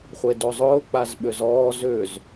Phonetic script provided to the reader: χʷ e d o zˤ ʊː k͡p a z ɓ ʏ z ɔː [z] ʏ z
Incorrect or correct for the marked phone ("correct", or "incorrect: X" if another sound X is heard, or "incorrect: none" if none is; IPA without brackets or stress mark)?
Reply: correct